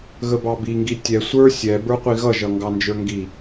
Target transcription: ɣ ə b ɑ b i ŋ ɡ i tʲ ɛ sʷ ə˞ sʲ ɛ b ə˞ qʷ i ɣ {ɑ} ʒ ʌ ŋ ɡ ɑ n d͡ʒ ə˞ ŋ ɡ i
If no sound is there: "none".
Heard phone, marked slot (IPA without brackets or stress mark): ʌ